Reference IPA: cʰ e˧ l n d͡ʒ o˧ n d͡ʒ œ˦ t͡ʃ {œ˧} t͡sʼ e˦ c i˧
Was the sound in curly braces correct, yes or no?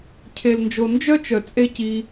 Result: no